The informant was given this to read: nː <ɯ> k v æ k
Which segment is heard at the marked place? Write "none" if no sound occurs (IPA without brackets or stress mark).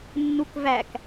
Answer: u